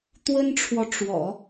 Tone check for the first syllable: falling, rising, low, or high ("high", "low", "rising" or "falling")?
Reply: high